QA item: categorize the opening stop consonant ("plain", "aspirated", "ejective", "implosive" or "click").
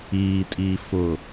ejective